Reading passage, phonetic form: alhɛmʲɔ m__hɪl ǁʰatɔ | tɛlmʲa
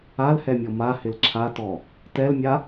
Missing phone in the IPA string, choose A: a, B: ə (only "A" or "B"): A